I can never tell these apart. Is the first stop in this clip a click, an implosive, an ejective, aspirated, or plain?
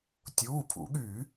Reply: plain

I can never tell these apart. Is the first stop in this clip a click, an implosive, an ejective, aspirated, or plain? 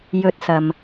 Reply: plain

